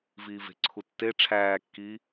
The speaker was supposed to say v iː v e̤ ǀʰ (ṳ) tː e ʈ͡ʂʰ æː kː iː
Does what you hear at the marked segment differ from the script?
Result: yes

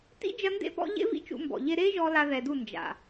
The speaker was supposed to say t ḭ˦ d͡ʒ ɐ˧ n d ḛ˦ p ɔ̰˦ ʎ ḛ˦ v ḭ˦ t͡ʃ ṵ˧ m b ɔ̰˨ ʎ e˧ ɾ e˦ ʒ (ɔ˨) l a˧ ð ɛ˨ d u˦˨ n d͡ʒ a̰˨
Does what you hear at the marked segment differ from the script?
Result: yes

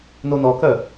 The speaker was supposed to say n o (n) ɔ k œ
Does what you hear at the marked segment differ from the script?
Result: no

